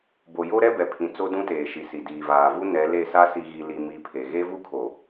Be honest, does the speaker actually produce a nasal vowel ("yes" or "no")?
yes